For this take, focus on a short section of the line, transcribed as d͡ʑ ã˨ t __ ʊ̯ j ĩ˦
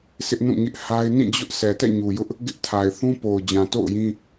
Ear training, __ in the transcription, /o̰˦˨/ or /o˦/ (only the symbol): o̰˦˨